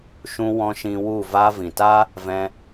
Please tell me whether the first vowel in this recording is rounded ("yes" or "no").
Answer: yes